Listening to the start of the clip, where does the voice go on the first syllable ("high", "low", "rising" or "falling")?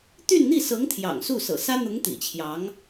falling